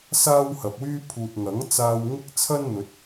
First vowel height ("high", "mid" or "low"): low